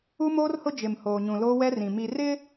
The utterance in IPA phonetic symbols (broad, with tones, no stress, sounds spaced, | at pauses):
u˦ m oː˦ r h ʊ˦ d͡ʒ ɪ˨ m h oː˨ ɲ ũ˨ l oː˦ w ɛ˦ r ĩ˨ m i˨ r ɪ˦